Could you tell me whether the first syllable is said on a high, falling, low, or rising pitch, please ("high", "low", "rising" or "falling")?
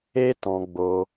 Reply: high